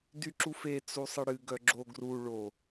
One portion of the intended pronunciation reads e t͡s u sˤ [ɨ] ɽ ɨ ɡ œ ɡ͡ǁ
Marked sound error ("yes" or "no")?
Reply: no